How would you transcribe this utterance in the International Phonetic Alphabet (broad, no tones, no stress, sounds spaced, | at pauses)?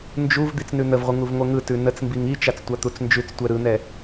n d͡ʒ u v d̪ i t͡s n ʉ n̪ ə v ʁʷ ɨ ŋ u v ŋʷ ɛ ŋ ɯ t ʉ n ə t͡s m b i ŋ i t͡ʃ a t͡s tʷ a t̪ u t͡s n d͡ʒ ʉ t͡s tʷ ɛ ɾ ɯ n̪ ɛ